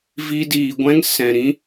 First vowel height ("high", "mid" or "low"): high